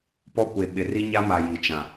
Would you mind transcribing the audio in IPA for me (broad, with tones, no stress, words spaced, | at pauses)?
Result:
pɔ˦kʷe˨ ɓɪ˨ ri˦ɲa˦ma˨ ji˨t͡ʃã˨